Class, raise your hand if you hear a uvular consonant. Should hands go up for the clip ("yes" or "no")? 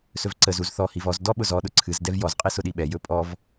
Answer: yes